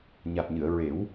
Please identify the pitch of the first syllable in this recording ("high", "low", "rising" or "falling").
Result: low